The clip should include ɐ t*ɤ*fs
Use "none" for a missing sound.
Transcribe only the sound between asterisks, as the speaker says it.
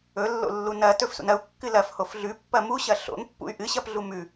ɵ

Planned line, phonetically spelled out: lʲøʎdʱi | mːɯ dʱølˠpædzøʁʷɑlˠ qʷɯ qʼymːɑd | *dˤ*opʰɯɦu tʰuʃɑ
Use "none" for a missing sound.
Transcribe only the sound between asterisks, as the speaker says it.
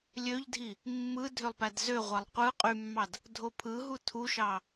dʱ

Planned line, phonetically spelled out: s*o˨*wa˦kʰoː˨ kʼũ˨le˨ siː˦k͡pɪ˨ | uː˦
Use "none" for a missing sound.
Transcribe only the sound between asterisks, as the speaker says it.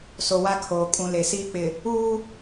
o˨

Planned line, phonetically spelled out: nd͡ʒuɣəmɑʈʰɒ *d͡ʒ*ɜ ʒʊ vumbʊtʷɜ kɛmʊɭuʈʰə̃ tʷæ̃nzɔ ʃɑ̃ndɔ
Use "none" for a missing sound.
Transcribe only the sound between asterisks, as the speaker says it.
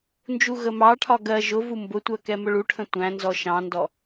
ɡ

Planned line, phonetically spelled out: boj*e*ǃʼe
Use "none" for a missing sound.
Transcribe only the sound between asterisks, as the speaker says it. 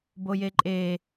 e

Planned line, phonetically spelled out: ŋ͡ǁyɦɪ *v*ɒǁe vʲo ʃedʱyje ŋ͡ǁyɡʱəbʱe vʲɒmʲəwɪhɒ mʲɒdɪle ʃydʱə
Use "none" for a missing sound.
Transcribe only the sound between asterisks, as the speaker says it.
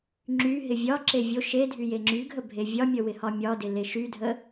vʲ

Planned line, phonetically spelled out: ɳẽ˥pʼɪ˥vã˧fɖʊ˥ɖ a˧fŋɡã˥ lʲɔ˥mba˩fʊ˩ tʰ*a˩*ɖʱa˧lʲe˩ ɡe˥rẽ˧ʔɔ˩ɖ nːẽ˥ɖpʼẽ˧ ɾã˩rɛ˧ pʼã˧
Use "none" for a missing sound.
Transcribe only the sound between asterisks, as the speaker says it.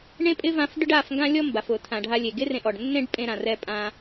ã˩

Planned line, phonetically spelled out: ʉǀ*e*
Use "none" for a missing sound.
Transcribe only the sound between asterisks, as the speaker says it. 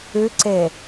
e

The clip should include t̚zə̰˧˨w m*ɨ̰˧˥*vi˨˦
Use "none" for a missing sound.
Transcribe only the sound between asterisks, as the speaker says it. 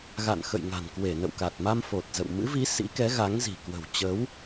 ɨ̰˧˥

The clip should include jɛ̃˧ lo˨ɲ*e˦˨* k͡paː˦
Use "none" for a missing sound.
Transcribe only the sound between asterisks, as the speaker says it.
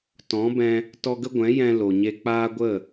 e˧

